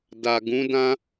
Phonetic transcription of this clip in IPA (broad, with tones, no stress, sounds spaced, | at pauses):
d a˨ ɡ ũ˨˦ d ã˦